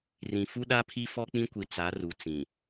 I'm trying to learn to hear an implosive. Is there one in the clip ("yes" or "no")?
yes